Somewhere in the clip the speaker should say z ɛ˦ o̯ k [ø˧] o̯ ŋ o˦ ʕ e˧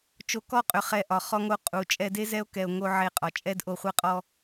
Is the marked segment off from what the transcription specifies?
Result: yes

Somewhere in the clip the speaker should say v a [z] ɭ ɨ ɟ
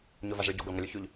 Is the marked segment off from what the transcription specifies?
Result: no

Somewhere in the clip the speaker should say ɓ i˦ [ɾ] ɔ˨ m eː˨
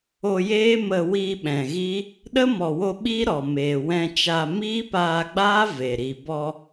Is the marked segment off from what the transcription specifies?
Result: no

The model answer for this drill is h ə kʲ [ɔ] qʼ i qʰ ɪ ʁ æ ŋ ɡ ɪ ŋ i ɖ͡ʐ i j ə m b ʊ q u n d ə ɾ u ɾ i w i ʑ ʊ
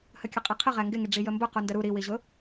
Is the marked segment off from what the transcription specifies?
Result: yes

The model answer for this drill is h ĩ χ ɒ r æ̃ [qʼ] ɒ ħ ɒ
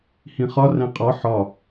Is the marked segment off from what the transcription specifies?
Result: no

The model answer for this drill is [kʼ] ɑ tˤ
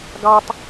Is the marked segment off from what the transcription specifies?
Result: yes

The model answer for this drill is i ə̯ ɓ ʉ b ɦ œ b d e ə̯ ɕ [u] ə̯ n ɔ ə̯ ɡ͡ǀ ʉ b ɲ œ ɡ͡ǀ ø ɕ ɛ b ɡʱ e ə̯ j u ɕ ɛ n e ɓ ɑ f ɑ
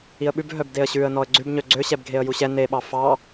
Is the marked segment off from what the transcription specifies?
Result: yes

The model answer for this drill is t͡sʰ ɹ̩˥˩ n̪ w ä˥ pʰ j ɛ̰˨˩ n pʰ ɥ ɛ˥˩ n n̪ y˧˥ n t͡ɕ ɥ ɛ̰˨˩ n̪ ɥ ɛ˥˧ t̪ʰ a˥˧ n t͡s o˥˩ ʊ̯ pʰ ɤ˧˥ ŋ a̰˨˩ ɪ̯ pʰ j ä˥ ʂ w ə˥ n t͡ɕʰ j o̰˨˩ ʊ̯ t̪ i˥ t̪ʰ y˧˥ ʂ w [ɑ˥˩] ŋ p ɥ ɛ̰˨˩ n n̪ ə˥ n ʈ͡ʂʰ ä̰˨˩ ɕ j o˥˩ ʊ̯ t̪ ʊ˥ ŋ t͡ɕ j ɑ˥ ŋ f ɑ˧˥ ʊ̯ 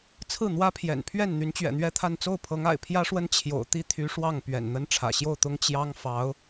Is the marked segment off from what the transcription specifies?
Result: no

